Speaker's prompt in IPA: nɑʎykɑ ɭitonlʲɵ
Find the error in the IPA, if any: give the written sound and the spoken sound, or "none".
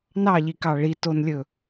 y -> i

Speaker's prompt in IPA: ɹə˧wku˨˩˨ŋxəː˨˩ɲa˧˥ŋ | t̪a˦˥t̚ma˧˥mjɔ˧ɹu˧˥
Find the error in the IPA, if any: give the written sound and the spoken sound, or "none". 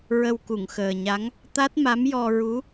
none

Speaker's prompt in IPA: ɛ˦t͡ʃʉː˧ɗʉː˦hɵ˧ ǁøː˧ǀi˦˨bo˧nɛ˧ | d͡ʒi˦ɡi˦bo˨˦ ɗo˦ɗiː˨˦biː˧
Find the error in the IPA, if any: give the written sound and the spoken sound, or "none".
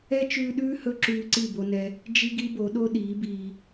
øː˧ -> ʉː˧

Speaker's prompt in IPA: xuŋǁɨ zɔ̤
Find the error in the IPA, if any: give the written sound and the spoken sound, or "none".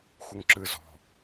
none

